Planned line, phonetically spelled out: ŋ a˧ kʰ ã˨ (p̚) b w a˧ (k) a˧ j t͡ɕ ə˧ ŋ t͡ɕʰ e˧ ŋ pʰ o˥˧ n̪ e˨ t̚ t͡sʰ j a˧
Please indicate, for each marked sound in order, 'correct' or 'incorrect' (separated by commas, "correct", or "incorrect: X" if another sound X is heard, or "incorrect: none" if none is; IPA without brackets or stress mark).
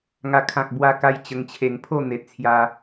incorrect: k̚, correct